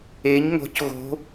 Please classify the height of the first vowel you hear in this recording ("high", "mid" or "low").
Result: mid